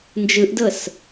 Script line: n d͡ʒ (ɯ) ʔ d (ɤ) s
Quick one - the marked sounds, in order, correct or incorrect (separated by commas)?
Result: correct, correct